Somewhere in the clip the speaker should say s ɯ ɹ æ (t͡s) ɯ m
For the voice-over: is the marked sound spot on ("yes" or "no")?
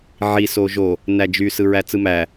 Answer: yes